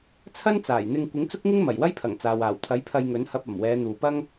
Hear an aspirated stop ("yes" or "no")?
yes